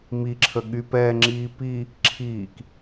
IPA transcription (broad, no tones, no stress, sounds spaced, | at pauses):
m i ǁʰ ə ɠ y p ɛː ŋ͡ǁ iː p i | ǁʰ iː k